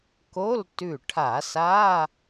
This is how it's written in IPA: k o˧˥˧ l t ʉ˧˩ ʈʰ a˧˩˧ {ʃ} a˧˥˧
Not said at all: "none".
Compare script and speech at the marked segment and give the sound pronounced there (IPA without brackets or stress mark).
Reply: s